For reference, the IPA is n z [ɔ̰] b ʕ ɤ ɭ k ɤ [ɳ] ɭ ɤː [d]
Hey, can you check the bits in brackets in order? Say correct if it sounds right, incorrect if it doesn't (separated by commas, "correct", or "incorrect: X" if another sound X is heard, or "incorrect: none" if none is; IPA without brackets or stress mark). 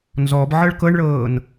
incorrect: ɔ, correct, incorrect: n